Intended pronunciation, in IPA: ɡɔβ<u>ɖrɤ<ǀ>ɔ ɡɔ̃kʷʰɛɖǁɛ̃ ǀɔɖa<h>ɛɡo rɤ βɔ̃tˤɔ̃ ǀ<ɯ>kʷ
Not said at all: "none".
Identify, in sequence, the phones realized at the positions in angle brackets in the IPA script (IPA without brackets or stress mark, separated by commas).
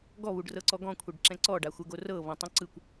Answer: u, ǀ, xʷ, ɯ